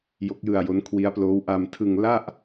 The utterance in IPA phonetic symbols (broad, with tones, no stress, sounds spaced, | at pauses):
j o˦˥ k̚ j ɯ˧ a̯ j o˦˥ n kʰ w i˦˥ a̯ p l oː˦˥ w ʔ a˧ m tʰ ɯ˧ ŋ l a˥˩ ʔ